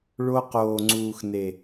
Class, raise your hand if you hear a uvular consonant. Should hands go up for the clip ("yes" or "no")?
yes